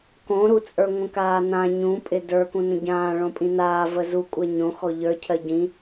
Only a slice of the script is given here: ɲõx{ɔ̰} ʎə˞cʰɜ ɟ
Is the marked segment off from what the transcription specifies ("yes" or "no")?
yes